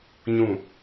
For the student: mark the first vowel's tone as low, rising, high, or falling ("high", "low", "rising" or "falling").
low